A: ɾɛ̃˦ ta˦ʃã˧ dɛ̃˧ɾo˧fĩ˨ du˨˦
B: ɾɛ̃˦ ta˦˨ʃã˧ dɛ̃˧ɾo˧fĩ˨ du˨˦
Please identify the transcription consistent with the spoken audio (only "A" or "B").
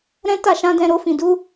B